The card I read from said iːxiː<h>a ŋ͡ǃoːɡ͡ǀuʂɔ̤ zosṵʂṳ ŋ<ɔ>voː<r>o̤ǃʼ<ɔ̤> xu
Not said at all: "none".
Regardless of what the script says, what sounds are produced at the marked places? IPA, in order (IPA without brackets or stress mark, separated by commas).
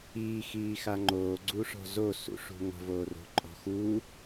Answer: x, ɔ̤, r, ɔ̤